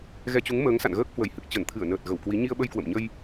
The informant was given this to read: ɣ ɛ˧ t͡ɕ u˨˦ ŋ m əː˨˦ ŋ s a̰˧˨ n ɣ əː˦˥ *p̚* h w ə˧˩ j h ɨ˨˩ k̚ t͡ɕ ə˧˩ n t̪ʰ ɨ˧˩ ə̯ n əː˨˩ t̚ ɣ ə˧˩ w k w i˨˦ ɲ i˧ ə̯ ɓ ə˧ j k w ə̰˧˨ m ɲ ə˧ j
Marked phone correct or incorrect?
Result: incorrect